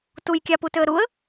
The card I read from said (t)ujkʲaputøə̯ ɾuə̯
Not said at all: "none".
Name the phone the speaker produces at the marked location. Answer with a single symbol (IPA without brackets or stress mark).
t